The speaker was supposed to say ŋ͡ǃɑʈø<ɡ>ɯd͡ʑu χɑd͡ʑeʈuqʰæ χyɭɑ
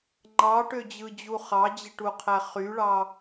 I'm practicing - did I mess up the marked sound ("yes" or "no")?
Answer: yes